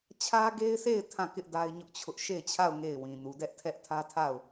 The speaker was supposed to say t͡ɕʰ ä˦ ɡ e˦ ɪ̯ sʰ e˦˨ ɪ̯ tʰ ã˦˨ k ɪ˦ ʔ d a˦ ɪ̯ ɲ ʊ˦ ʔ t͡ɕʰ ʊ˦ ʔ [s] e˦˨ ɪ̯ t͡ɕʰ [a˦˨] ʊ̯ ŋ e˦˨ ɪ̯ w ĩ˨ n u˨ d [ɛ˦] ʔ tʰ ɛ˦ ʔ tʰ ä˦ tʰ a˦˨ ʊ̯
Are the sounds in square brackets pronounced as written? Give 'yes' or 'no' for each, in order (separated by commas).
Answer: no, yes, yes